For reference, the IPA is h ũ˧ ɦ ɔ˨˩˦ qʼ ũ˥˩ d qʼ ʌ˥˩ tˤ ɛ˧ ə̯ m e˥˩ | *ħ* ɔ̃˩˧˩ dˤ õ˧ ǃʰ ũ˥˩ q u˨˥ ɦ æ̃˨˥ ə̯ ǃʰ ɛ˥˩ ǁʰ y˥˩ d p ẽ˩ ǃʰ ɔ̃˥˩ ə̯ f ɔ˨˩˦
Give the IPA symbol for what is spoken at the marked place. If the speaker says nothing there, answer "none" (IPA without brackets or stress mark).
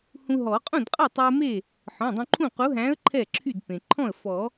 ħ